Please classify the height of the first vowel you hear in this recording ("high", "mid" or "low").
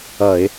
mid